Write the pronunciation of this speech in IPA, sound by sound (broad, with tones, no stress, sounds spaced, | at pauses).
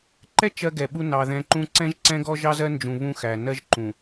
ǃ ɛ˦ t͡ʃ ɜ˦ ɡ ɛ˨ ɓ u˦ n ɑ˨ ð ɛ̃˨˦ ǃ ũ˦ ǀ ɛ̃˦ ʒ ǀ ɛ̃˦ ɡ ɔ˦ ʒ ɑ˦ z ɜ˦ n d͡ʒ ũ˨ β ũ˦ x æ˨ n ɜ˦ ʒ ǃ ũ˨